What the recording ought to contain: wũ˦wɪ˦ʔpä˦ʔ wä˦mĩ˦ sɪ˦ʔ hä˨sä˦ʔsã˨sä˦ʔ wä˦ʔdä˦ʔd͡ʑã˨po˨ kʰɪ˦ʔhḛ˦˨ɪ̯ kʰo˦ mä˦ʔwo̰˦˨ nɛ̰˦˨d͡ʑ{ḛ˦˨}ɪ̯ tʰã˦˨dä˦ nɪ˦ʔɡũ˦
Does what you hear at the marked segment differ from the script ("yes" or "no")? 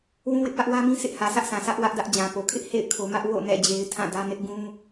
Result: yes